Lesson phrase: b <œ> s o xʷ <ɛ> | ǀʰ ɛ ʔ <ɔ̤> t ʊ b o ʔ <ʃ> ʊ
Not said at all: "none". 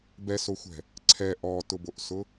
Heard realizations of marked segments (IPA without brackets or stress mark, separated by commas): ɛ, ɛ̤, ɔ, s